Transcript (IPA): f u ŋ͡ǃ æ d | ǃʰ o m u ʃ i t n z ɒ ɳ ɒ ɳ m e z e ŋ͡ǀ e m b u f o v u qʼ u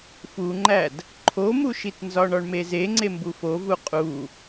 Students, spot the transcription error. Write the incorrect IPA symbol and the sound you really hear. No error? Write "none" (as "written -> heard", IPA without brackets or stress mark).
none